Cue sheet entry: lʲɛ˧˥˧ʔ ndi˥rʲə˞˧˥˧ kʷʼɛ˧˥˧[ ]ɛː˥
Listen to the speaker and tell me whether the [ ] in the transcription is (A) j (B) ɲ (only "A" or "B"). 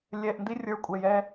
A